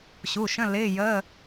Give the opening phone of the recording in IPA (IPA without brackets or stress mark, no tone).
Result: ɕ